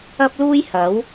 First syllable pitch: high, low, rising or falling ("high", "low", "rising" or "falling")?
high